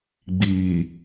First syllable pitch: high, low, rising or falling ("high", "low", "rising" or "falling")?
low